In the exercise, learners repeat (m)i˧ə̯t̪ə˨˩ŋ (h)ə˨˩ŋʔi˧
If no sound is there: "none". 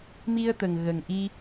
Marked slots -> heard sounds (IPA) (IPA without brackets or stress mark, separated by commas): m, ɣ